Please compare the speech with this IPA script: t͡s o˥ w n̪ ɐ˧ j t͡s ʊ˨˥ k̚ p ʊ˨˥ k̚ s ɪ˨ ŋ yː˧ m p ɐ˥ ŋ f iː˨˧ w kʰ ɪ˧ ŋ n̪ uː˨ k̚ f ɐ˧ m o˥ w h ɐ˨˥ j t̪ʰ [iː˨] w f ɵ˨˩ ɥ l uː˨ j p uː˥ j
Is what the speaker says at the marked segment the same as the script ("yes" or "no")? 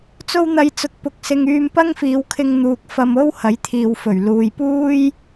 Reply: yes